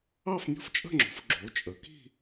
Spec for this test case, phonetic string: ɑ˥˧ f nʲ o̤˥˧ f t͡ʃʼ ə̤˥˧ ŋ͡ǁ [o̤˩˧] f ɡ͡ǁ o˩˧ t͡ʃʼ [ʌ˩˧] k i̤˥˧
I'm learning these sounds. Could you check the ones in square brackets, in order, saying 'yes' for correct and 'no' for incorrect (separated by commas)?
yes, no